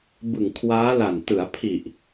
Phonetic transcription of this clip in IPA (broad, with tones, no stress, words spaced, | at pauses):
bɯ˨˩ŋkʰwaː˦˥la˨˩n tɯ˩˦a̯pʰi˨˩ʔ